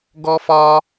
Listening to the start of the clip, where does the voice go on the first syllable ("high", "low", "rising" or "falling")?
high